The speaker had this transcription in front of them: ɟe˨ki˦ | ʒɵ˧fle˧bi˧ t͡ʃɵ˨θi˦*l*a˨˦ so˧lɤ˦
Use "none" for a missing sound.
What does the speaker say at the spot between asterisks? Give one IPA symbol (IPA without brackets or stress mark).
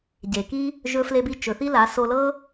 l